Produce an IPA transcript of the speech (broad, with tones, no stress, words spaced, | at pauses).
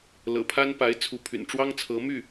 lɤ̰˨˩pʰa˥npa˧˥ɪ̯ t͡sʰu˧˥pʰy̰˨˩nʈ͡ʂwɑ˥ŋt͡sʰɤ˧˥ my˥˩